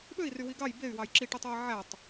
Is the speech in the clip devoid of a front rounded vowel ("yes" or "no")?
no